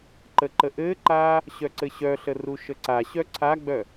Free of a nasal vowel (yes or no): yes